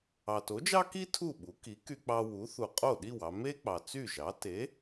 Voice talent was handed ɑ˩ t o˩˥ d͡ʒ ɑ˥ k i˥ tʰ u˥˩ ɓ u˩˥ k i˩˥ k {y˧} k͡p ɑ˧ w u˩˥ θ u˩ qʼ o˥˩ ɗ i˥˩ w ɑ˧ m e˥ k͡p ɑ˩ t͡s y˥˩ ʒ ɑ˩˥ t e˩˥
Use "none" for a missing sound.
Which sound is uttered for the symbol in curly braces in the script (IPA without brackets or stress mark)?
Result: y˧